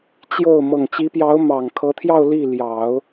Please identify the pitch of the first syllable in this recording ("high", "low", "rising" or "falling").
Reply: falling